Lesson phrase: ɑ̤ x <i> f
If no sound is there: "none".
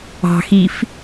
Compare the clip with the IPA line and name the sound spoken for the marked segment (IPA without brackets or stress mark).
i